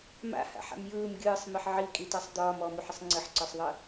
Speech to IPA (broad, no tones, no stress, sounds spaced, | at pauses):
m a̰ h a̰ ħ a̰ m j ɯː m ɡʲ ɯː sˤ m i ħ ʕ i kʼ i t a sˤ d̪ ɒː m ɔ m u ħ ə sˤ ŋ͡ǀ ə ħ ǀ ɒ sˤ ðˤ ə